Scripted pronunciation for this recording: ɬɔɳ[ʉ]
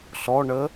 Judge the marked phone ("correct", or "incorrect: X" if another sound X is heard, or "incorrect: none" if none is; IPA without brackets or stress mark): incorrect: ə